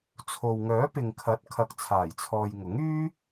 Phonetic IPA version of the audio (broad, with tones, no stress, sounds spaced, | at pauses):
t͡sʰ o˨ w ŋ œː˨˥ p ɪ˨ ŋ kʰ ɐ˨˥ t̚ kʰ ɐ˨ k̚ t͡sʰ aː˨˩ j t͡sʰ ɔː˨ j ŋ ʊ˨˥ ŋ yː˥